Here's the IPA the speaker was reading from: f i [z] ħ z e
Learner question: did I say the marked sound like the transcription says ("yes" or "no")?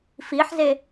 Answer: no